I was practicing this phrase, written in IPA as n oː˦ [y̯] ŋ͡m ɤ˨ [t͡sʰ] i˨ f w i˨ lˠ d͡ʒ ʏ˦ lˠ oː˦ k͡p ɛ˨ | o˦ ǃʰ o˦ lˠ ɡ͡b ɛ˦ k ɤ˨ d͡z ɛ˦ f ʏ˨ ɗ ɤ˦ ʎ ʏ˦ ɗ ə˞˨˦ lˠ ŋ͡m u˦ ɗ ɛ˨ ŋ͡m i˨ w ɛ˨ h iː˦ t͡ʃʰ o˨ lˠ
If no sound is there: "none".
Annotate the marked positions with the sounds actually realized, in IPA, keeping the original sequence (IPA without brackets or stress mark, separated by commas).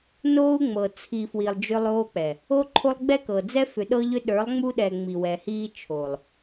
u̯, t͡sʰ